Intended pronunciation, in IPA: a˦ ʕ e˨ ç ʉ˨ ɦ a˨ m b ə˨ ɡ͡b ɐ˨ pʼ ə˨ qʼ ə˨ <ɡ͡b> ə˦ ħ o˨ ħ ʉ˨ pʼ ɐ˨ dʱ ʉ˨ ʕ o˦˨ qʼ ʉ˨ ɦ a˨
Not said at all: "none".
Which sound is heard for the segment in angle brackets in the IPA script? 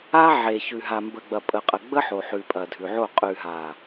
ɡ͡b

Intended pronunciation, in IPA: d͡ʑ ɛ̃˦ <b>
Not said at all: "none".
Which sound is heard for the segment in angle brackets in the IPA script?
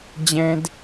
d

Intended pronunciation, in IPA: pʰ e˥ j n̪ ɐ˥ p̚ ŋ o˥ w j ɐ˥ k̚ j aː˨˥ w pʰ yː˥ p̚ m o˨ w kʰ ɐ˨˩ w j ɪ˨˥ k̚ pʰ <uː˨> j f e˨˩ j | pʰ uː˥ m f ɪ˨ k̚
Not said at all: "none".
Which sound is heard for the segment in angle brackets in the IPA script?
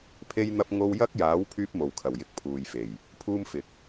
uː˨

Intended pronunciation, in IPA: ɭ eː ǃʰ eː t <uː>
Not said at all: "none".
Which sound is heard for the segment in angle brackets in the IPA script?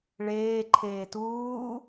uː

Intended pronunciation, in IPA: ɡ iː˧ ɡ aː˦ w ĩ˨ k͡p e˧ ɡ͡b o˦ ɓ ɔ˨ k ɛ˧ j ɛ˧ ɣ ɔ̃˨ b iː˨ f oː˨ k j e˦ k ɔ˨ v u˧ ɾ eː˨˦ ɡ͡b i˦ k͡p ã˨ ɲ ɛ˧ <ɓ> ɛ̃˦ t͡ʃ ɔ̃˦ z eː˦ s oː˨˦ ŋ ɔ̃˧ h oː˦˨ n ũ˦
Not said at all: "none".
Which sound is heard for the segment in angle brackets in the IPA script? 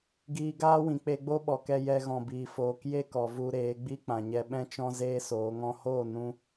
ɓ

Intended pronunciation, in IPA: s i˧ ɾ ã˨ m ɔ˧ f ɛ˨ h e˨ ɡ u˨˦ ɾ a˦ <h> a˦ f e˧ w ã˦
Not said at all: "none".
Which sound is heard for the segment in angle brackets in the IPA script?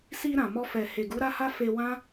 h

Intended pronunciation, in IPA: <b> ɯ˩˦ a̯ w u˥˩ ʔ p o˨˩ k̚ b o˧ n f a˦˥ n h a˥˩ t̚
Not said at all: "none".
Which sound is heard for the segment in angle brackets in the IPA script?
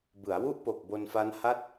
b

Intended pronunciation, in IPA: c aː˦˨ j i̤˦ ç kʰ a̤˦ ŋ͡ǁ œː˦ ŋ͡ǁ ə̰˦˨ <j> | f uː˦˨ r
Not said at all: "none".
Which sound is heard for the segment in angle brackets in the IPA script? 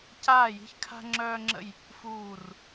j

